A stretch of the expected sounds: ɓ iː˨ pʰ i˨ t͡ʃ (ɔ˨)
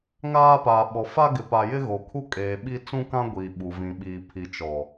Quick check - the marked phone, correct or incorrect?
correct